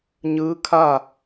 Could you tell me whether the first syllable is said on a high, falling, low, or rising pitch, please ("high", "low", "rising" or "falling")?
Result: rising